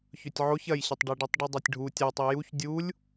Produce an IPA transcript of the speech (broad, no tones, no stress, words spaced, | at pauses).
çɵtʲʕoç ɐjɕɐtˤɖeɖitˤ ɖʉdˤatʲɖʱu tʲatˤi juç dʲulʲ